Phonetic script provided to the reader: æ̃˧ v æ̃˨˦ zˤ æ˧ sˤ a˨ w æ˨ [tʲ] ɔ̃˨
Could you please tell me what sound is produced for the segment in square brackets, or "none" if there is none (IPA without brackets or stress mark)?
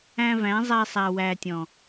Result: tʲ